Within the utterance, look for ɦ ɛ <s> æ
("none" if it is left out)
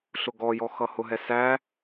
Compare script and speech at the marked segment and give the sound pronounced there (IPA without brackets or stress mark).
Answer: s